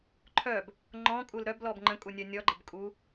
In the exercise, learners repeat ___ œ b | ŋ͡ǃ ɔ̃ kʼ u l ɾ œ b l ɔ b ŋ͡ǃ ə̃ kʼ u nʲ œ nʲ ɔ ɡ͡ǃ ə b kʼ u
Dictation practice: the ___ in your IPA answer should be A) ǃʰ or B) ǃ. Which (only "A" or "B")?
A